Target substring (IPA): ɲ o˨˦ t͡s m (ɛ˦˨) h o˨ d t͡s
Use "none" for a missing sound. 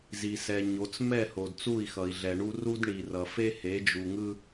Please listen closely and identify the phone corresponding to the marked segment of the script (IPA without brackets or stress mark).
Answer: ɛ˦˨